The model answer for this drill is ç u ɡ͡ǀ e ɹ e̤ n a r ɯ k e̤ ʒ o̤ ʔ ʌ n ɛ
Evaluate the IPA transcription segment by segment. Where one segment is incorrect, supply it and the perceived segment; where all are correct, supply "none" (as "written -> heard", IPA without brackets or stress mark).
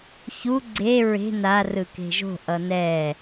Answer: none